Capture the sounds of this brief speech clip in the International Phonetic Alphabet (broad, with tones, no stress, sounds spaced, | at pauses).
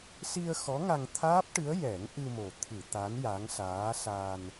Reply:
s i˧ ə̯ x ɔ˧˥ ŋ a˧ ŋ t̪ʰ aː˦˥ p̚ ʈ ɨ˧˥ ə̯ j ɛ˨˩˦ ŋ ʔ ɨ˧ m o˨˩ t̪ʰ ɨ˨˩˨ t̪ a˧˥ n j a˧˥ ŋ s aː˧˥ s a˧ n